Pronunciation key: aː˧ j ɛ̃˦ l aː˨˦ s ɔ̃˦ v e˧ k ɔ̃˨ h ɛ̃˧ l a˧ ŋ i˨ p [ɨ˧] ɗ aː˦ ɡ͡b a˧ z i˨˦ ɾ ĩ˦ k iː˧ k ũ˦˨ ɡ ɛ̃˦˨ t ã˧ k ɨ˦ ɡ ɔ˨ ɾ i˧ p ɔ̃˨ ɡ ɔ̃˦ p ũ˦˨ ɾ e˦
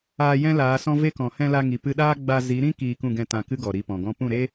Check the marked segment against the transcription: correct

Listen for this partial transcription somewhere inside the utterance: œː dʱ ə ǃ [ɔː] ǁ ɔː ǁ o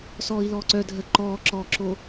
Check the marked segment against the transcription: correct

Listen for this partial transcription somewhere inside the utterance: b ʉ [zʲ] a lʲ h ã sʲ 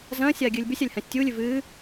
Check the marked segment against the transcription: incorrect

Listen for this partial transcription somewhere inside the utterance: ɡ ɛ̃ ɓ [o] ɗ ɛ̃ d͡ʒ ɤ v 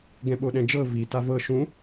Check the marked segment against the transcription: correct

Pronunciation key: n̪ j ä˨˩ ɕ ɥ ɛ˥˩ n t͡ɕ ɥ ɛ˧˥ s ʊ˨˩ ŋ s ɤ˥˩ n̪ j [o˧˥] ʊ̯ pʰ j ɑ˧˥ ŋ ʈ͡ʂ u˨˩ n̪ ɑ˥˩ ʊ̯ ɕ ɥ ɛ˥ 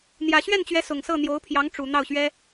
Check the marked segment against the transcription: correct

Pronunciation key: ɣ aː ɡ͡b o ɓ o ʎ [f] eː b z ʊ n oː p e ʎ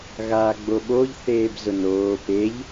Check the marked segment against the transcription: incorrect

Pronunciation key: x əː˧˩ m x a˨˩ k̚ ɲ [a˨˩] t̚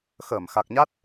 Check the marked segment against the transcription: incorrect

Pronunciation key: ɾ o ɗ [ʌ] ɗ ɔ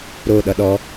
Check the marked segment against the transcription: correct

